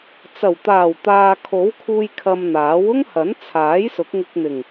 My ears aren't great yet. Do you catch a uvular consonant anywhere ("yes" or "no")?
no